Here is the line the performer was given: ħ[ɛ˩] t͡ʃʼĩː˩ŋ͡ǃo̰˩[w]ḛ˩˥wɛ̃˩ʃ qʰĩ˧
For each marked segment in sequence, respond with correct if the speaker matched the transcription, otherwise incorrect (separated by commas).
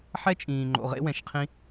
incorrect, incorrect